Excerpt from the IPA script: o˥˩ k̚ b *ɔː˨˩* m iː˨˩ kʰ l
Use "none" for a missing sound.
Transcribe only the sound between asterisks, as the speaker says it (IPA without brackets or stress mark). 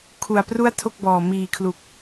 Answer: ɔː˨˩